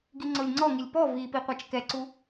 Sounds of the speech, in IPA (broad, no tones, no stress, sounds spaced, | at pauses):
ɡ i ŋ͡ǀ o lʲ ŋ͡ǀ ɔ ŋ i lʲ p ɔ v i p i qʷ a t͡ʃ k ɛ ǀ u